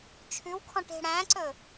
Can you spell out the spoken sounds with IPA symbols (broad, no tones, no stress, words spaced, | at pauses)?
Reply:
t͡ʃʰʉw kʰɔ̃ʈe̤ɽæ̃ǀɵ